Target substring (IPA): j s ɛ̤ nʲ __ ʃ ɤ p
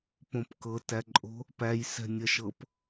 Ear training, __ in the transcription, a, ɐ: ɐ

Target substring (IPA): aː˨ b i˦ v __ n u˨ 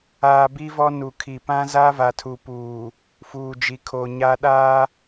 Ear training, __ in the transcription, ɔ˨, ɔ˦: ɔ˦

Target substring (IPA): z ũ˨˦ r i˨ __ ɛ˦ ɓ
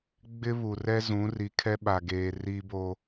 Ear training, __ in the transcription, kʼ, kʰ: kʰ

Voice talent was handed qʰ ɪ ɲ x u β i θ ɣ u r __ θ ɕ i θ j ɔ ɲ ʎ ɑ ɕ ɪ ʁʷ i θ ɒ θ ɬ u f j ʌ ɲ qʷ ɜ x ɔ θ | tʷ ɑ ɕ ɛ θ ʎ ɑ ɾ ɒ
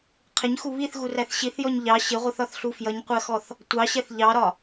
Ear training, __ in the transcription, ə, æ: æ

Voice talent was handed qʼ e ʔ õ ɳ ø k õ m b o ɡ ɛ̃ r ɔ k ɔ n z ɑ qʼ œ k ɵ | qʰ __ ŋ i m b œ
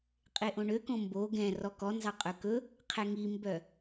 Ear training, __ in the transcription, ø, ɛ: ɛ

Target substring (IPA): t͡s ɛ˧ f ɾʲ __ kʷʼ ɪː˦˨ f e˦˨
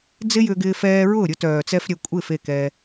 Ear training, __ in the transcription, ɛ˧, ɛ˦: ɛ˧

